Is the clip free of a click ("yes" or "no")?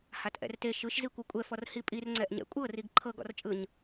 no